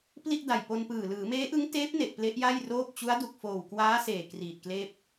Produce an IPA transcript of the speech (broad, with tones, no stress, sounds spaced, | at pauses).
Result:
p l i˥˩ ʔ d a˨˩ j p o˧ n p ɯː˨˩ l ɯː˩˦ m eː˦˥ ʔ ɯ˦˥ ŋ t eː˦˥ p̚ n e˨˩ ʔ p l e˦˥ ʔ j a˥˩ j r oː˥˩ p̚ t͡ɕ u˦˥ a̯ d u˨˩ k̚ f oː˨˩ w k w aː˦˥ s eː˨˩ k r iː˨˩ t̚ k l eː˥˩ p̚